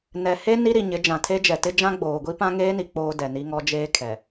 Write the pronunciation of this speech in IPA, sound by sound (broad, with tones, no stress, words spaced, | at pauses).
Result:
nɛ˨he˦ ni˦ɾi˨ɲɪ˨˦ d͡ʒã˨tʰe˦d͡ʒɛ˨tɪ˦ d͡ʒã˦ɡ͡boː˨ɡʷi˦ pã˦ŋeː˦ni˨ k͡poː˦dɛ˨ni˦ŋɔ˦ d͡ʒeː˦kʰɛ˨